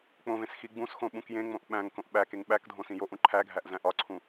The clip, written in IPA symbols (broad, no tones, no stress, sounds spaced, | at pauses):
k͡p õ v ẽ s x i ɡ͡b ũ s x õ ɓ ũ k j ẽ ŋ͡m õ ʔ ɓ æ̃ ŋ k õ ʔ ɓ æ k e ŋ ɓ æ k dʱ õ s ĩ j o ʔ ũ ǃʰ æ ɡʱ æ ʔ z æ̃ ʔ ɒ ǀʰ ũ